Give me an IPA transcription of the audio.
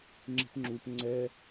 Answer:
ŋ͡ǁ i̤ p ŋ͡ǁ u p ŋ͡ǀ ɛ

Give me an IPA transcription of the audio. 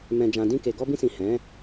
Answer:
m ɛ̃˨ d͡ʒ ã˨ d ĩ˧ k e˨ ɡ ɔ˧ b ĩ˧ s ĩ˨ h ɛ̃˨˦

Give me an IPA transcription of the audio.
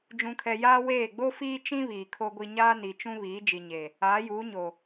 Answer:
d͡ʒ ũ˨ kʰ ɛ˨ j aː˦ w eː˦˨ ɡ͡b o˦ f iː˦ t͡ʃ ĩ˦ β iː˨ kʰ o˦ ɡʷ i˦ ɲ aː˦ n i˨ t͡ʃ ũ˦ β iː˨˦ d͡ʒ i˨ ɲ e˨ | aː˨˦ j uː˨˦ ɲ o˨

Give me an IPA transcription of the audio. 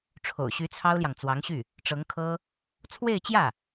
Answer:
ʈ͡ʂʰ o̰˨˩ ʊ̯ ɕ y˧˥ t͡sʰ ɑ˥ ʊ̯ l j ɑ˨ ŋ t͡s w ɑ˧˥ ŋ ɕ y˥˩ | ʈ͡ʂ ɤ˧˥ ŋ kʰ ɤ˥ | t͡sʰ w e˥˧ ɪ̯ t͡ɕ j ä˥˩

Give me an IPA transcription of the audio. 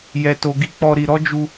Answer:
j ɛ˧ t o˧ ɡ i˦ k͡p ɔ˦ ɾ i˧ ɾ ɔ˦ d͡ʒ u˧

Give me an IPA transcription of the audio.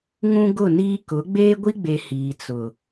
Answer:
ŋ ũ˦ ɡ ʊ˦˨ n iː˦ k ʊ˨˦ ɡ͡b eː˦ ɡʷ i˦ ɡ͡b e˨ h iː˨ t͡s ʊ˨

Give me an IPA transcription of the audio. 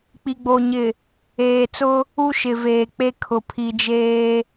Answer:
k͡p i˨ ɡ͡b o˨ ɲ ɪ˨ | eː˨ t͡s ʊ˦ | u˦ ʃ ɪ˨ v eː˨ k͡p e˦ kʰ ʊ˨ pʰ i˨ d͡ʒ eː˦

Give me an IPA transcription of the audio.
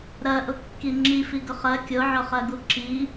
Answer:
ɾ ɜ ʔ ʊ kː i ŋ͡ǁ i f i ɡ ʊ χ ɜ kʲ ʊ ʕ ʊ χ ɜ ɡ u ǁ i

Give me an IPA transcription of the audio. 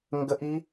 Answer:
ŋ ɡ ə˦˥ ʔ i˦˥

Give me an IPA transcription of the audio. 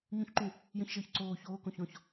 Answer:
ɲ ũ ç ǃ ũ | j ə̃ ç ʒ əː ç ǀ oː ç oː k õ ç ɔ̃ ç

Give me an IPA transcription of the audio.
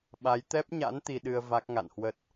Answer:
ɓ a˨˦ j t̪ ɛ˦˥ p̚ ɲ a̰˧˥ n t̪ i˧ ɗ ɨ˧ ə̯ v a˦˥ k̚ ŋ a̰˧˨ n h w ə˦˥ t̚

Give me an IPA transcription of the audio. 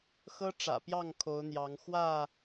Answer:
x ɤ˦ ʈ͡ʂ ä̰˨˩ p j ɑ˥˨ ŋ kʰ o˨˦ ʊ̯ n̪ j ɑ˨˦ ŋ x w ä˥˨

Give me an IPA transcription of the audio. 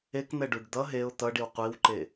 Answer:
e k n̪ ɛ ɖ u ɖ d̪ ʌ ɦ e ʊ̯ t̪ ʌ ɖ i w qʷ i w ǃ e

